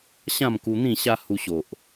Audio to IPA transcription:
ɕ ã˥˧ m k u˧ n̪ ĩ˥˧ ɕ a˦ h u˧ ɕ o˨ ʔ

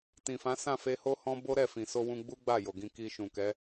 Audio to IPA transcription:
t ĩ˨ f ã˨˦ s ã˦˨ f e˧ h o˦ h ɔ̃˦ b o˦ ɾ ɛ˦˨ f ĩ˨ s o˧ w ũ˧ ɡ͡b u˦ ɡ͡b a˦˨ j o˨ ɡ ĩ˧ k i˧ ʃ ũ˨ k ɛ˨˦

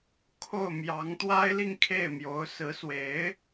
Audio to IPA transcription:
kʰ o˥˩ ʊ̯ m j ɑ˧˥ ŋ t̪ w a˥ ɪ̯ l i˥˧ ŋ kʰ e˥˩ ɪ̯ m j o˧˥ ʊ̯ s ɹ̩˧˥ s w e˧˥ ɪ̯

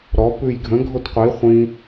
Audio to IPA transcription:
ɾ ɔ p ʉ j ɡʱ ə̃ ɡʱ o t qʷ i χʷ ĩ

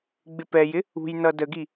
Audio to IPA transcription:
ɡ͡b ɪ p ɛ j ɪ | ṳ j n ʌ d ə ɡ i

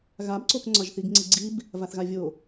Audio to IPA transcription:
ɣ a b ǀ o k ŋ͡ǀ ɒ ʒ θ i ɡ ŋ͡ǀ i ɡ͡ǀ i b | v a θ ɣ a vʲ o

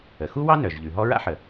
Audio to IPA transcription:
ə˩ x u˥ w ɑ˥ n œ˩ ʒ ʎ ʉ˩ ɦ ɔ˥ ɹ a̰˥ ħ ə˩

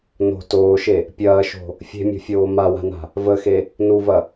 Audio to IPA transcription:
n o̤ t oː ʃ e | pʲ ɐː ʃ o̤ | fʲ e̤ mʲ o̤ fʲ oː m a w a̤ n a̤ | v ə x e | n u v ɐ

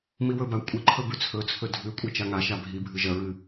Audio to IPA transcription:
m i w ɵ b a kʷʼ i ǃʰ ɵ b ʉ t͡sʰ ɵ t͡sʰ ɵ dʱ ʉ kʷʼ i t͡ʃ a ŋ a ʃ a bʱ i bʱ ɨ ʒ ɐ ɹ ɨ

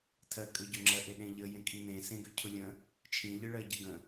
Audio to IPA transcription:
tʰ ɜ kʼ ø ɟ ø ŋ͡ǁ ɜ ʔ e ɗ ẽ ʎ ə j ẽ kʼ i n ẽ s ẽ ɡ ø cʰ ʊ lʲ ə̃ | t͡ʃʰ ĩ ʎ ɨ ɭ ɜ ɟ ə ɡ ə̃

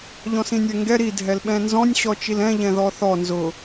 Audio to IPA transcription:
ʎ ɔ̃ s ĩ nʲ ɛ ŋ ɡ ɛ ɾ i dʱ ɛ l ɓ ɛ̃ n z ɔ̃ nʲ ɕ ɔ t͡ʃ i l ɛ̃ ʎ ɛ̃ ð ɔ θ ɔ n z ʊ

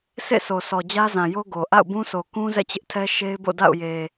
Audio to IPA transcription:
s ḛ˦˨ s o˨ sʰ ɔ˨ d͡ʑ ä˦ z ã˨ j o˦ ɡ o˨ ʔ a̰˦˨ ʊ̯ b ũ˦ sʰ o˨ k ũ˦ z ɛ̰˦˨ t͡ɕ ɪ˦ ʔ tʰ ɛ˦ ʃ e˦ ɪ̯ b o̰˦˨ d a̰˦˨ ʊ̯ j e˨

